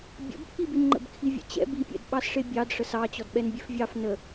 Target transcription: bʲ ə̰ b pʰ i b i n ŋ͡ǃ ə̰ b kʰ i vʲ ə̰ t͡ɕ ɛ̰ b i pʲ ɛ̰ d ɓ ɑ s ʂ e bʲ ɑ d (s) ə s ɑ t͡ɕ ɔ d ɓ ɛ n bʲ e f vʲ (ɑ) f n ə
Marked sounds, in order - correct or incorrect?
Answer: incorrect: ʂ, correct

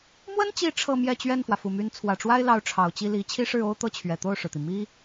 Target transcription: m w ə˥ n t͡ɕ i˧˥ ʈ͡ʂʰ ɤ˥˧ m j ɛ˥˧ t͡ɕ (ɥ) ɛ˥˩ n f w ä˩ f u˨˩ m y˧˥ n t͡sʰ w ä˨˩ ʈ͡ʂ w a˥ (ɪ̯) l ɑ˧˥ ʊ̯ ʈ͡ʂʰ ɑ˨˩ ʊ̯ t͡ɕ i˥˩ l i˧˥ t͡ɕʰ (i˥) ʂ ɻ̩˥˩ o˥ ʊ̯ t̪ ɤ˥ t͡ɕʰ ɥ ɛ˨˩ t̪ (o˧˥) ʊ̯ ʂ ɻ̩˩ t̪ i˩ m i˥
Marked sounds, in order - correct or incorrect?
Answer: correct, correct, correct, incorrect: o˥˩

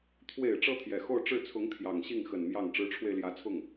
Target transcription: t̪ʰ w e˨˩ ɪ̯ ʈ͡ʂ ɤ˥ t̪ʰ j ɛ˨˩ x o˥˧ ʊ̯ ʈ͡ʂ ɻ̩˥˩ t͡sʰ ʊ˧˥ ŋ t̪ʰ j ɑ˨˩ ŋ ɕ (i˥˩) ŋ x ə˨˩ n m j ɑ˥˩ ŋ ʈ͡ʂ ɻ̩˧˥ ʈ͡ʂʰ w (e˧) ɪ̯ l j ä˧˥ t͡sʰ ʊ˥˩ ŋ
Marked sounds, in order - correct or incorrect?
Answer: correct, correct

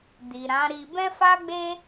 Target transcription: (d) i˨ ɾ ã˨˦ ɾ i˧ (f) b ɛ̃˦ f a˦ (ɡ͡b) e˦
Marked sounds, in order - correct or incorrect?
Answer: correct, incorrect: none, correct

